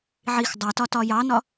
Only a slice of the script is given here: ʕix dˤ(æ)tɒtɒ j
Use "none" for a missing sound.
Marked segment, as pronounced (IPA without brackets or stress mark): æ